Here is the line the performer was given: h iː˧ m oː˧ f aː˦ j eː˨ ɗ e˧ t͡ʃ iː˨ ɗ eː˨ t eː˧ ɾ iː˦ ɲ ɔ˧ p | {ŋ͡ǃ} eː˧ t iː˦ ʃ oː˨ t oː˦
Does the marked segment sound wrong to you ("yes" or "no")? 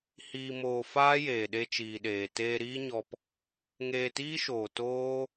yes